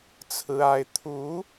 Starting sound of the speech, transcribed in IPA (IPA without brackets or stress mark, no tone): t͡sʰ